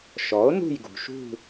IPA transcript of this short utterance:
ʃ ɔ˩˥ o̯ n ṳ˦˨ j ɡ ṳ˩ ʃ ṳ˦˨

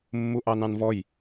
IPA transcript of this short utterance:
mː u ʔ ɑ n ɑ̃ n v ɔ j

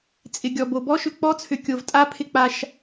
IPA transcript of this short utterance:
t͡sʼ ɪ˨ ɡʲ ɔ˨ b o˨ b ɔ˦ ʃ ʏ˨ k͡p ɔ˦ t͡sʰ ʏ˨ kʲ o˨ v tʼ a˦ pʰ ɪ˦ k͡p a˦ ʃ

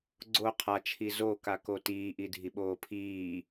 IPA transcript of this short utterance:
ɡ͡ǀ o qʰ a t͡ʃʰ i z o k a k o t iː ʔ i dʱ i ɓ oː pʰ iː

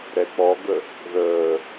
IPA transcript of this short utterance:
ɾ ɛ k͡p ɔ ɡ ə | ð əː

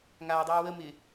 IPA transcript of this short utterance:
ŋ aː dˤ ɨː w ə m ɪ

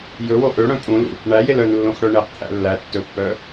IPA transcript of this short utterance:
j ɵ w o ʔ ø ɽ œ̃ pʼ ũ l ṵ | ɳ æ j e l œ n lː õ x ɽ œ ɳ e q t̪ʰ æ̰ lː æ tː ɵ pː œ

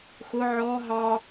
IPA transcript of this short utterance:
x ʊ ʕ ɔ ɦ ɑ

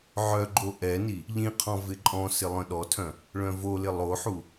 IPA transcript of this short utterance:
ʕ œ ɡ͡ǃ o ʔ ɛ n i | ʎ ĩ qʰ ɔ̃ v ɪ ǃʼ ɔ̃ s ɪ lˠ œ̃ ɗ ɔ tʰ œ̃ | ɭ œ̃ v o l ɪ lˠ o ħ u

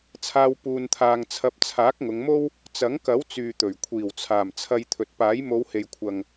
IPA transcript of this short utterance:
t͡sʰ aː˧ w p uː˧ n t̪ʰ aː˧ ŋ t͡sʰ ɐ˧ p̚ t͡sʰ aː˨˥ k̚ ŋ ʊ˨˧ ŋ m o˥ w | t͡s ɐ˨˥ ŋ k ɐ˨˥ w t͡s yː˨ t̪ ɵ˨˩ ɥ kʷʰ iː˨˩ w t͡sʰ aː˨˩ m t͡sʰ ɐ˧ j t̪ʰ ɵ˨ t̚ p aː˨˥ j m o˨˧ w h e˨ j kʷʰ ɐ˨ ŋ

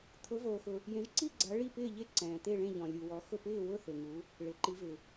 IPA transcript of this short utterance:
t̪ʰ ʊ˨˦ v oː˨ x ʊ˨ | j ẽ˨˦ ʒ ǀ i˥˨ ɡ͡ǀ a˨˦ ɭ i˥˨ p ɪː˥˨ ʎ e˥˨ ǀ ɛ̃ː˨ t̪ e˥˨ ɭ ẽ˥˨ ʎ ɔ̃˨ lʲ u˨ w ɔ˨˦ x ʊ˥˨ p ɪː˥˨ w ʊ˥˨ θ e˨ ŋ u˨˦ | ɭ e˨˦ ǃ i˨˦ v ɪ˨

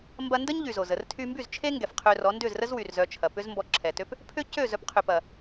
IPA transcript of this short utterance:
m b ɐ˧ n d ə˦ ɲ ʎ y˨ z o˨ z ə˧ r tʰ y˧ m b y˦˨ z t͡ʃʰ e˦ ŋ ɡ ɛ˨ f qʰ ø˧ r ɔ˨˦ n d ʏ˦˨ z r ə˦ z w y˨ r z œ˦ t͡ʃʰ ɐ˧ p ʏ˦ z m b ɔ˧ ǁʰ ɛ˨ t ø˦ p | pʰ ʏ˦ c ø˦˨ z œ˧ p qʰ ʏ˨ p ɐ˨

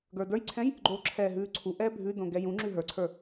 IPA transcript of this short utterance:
ɡ ə˞ d ə˞ j ǀʰ ɛ̃ j | ɡ͡ǃ o ǁʰ ɛː ɦ ʉː ǀʰ u ʔ ɛː bʱ ʉ d õ ɡ ɛ j ũ ŋ͡ǁ ʉ ɦ ə˞ ǀʰ ə˞

